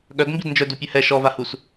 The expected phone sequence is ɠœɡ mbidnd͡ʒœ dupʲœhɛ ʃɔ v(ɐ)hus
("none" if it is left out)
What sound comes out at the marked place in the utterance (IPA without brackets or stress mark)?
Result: a